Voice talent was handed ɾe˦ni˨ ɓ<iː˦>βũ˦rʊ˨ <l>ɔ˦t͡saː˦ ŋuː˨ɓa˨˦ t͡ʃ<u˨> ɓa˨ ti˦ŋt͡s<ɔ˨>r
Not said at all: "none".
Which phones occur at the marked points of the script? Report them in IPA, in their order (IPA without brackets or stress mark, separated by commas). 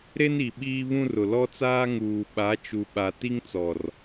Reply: iː˦, l, u˨, ɔ˨